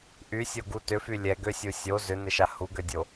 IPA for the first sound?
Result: ʔ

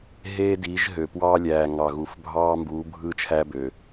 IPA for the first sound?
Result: ɦ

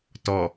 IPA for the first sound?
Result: t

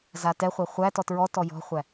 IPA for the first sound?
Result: z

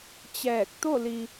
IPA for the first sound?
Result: t͡ɕ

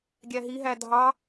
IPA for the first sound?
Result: ɡʲ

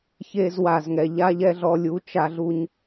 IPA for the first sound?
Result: ç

